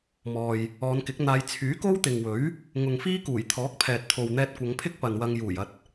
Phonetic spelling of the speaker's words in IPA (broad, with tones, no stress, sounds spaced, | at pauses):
m ɔː˨ j | ɔː˨˧ n k ɪ˨˥ k̚ n̪ aː˧ j t͡sʰ yː˨˥ k o˥ w t̪ ɪ˨ ŋ w ɵ˨˥ ɥ | ŋ ʊ˨ ŋ f iː˥ k uː˨˩ j t̪ʰ ɔː˨˥ k̚ pʰ ɛː˨ t̚ t̪ʰ o˨ w n̪ ɛː˧ t̚ kʷ ɐ˨˧ ŋ pʰ ɪ˥ k̚ p ɐ˨ n w ɐ˧ ŋ j uː˨˩ j ɐ˧ t̚